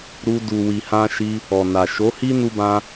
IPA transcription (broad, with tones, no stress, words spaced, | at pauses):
ɾu˧ du˨wi˨hã˧ʃi˧ | ɔ˨na˨ ʃo˨˦hi˦ nu˧bã˧